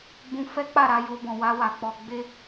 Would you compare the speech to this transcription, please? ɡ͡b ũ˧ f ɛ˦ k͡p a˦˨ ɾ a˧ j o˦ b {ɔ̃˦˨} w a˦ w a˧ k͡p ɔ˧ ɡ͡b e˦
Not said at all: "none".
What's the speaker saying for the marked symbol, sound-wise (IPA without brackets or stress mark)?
ɔ̃˧